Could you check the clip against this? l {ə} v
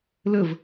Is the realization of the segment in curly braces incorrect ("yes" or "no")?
no